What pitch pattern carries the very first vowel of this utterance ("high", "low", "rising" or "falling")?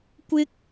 high